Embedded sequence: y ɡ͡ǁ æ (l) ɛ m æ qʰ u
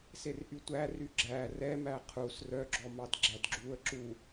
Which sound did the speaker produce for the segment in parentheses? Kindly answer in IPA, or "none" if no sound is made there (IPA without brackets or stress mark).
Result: r